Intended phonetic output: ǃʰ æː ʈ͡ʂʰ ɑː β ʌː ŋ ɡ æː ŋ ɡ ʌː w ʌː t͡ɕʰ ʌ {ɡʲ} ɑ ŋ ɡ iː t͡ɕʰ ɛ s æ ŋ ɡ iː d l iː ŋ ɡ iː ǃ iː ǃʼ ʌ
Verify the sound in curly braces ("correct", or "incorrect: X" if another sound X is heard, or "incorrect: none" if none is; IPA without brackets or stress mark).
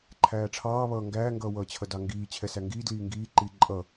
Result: incorrect: d